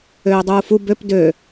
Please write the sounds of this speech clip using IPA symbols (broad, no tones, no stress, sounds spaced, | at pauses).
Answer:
øː dˤ uː f u b ø p d ø